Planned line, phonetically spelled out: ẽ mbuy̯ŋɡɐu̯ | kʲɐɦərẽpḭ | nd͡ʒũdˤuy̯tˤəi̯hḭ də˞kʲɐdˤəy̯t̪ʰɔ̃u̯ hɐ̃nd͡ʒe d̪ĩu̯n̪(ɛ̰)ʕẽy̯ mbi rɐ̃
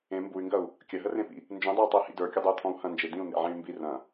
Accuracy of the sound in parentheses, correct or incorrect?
incorrect